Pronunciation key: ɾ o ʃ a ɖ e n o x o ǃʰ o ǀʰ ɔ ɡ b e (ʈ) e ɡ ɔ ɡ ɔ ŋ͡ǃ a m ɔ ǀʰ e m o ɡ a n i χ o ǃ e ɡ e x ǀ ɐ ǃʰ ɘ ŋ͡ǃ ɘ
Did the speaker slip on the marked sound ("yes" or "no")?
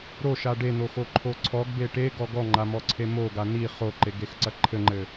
no